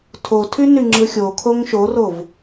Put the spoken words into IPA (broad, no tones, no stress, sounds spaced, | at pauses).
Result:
tʰ o tʰ y n y ŋ͡ǁ ɯ xʲ o kʰ o ŋ ʃ o r o v